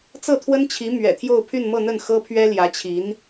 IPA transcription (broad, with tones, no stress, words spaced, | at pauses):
t͡sɤ˥˩t̪ʰwə˥nt͡ɕʰi˧˥ mɥɛ̰˨˩t̪ʰjo˥˧ʊ̯ pʰy˥˧nmɤ˥˧n̪ə˥˩n xɤ˥pʰɥɛ˥ ljä˧˥t͡ɕʰi˧˥n